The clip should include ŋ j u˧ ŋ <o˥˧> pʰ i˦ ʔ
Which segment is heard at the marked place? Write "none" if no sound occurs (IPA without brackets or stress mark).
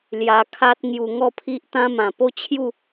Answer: ɔ˥˧